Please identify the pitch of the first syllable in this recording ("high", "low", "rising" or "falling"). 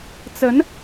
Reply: rising